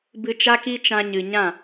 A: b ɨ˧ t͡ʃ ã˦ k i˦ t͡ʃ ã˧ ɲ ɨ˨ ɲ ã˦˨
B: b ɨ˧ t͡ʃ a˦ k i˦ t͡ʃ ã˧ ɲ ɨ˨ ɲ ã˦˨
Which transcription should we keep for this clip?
B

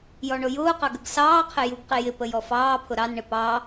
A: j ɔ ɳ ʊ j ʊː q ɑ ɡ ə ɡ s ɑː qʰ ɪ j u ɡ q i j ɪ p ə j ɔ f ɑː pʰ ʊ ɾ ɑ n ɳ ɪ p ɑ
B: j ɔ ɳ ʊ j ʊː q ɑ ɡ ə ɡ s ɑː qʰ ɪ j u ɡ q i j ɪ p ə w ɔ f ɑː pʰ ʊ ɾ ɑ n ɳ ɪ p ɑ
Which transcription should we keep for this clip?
A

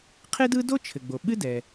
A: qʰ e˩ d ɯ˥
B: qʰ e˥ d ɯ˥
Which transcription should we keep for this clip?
B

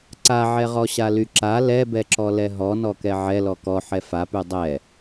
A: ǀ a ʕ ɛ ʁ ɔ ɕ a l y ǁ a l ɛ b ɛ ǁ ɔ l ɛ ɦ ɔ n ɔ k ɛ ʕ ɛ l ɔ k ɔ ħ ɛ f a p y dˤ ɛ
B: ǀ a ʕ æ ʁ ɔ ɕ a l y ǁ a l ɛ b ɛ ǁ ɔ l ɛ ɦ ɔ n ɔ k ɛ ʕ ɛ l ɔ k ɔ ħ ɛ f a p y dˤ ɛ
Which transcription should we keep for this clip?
A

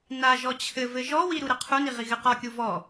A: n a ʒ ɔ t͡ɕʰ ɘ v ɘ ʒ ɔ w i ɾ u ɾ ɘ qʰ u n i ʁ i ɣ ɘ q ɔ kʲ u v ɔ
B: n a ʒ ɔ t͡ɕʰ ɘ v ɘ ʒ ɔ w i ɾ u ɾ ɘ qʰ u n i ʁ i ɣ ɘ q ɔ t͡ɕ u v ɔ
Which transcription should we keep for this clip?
A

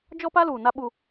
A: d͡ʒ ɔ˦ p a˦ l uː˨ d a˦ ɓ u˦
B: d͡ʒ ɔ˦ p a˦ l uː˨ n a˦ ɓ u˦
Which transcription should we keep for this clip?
B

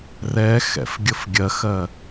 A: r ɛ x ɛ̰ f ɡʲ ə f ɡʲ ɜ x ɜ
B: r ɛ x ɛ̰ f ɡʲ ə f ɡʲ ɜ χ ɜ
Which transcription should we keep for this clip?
A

